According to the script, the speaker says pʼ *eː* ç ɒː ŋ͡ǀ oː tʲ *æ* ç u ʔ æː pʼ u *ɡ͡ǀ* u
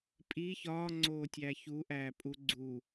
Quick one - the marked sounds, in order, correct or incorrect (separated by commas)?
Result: incorrect, correct, correct